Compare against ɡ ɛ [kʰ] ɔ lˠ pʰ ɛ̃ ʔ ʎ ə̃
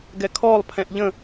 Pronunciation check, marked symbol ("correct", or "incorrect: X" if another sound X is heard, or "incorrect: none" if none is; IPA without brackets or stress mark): correct